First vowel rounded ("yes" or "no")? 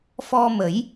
yes